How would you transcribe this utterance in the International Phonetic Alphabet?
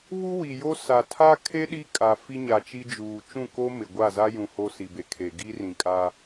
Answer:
β u˦ w i˨ j o˦ s a˨ tʰ a˦ kʰ e˦ ɗ i˦ kʼ a˨ f i˦ ɲ a˨ t͡ʃ i˦ d͡ʒ uː˨ t͡ʃ ũ˦˨ k o˦ m ɪ˨ ɡʷ a˦˨ z a˦ j ũ˨ h o˦ s i˨ b e˨ kʰ e˨ ɡ i˦ r ĩ˨ kʼ a˦

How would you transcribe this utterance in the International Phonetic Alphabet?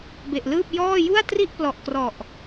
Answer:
b e˨˩ ʔ l ɯː˥˩ p̚ j ɔː˥˩ j u˥˩ a̯ t r i˥˩ ʔ p l ɔ˨˩ ʔ k r ɔ˨˩ ʔ

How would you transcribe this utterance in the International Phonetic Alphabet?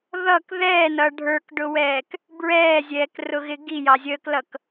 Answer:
ð ʌ k ð ɛː n ʌ ɖʱ ə˞ k ɖ ʊ w ɛː k | b ɹ ɛː zʲ ɛː k r ʊ ɣ ɪ ɡ i j ɑ zʲ əː k l ʌ k

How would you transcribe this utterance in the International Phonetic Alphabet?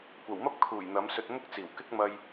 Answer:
kʷ ɐ˨˩ w m ɐ˥ p̚ kʰ uː˨˩ j n̪ ɐ˨˧ m s ɵ˧ t̚ m ʊ˥ k̚ t͡s iː˨˩ w k ɪ˥ k̚ m ɐ˧ j

